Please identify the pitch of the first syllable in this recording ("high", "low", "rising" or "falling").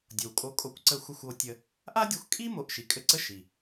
low